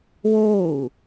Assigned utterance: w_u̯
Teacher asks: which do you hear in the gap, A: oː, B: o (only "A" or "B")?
A